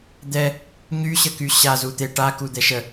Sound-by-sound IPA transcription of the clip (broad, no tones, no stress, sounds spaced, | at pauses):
d̪ ɛ | ɲ y ɕ ə k y ɕ a z u t̪ e ʈ a k u d̪ ɛ ʃ ə